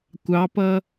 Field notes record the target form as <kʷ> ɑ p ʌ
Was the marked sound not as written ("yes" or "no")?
no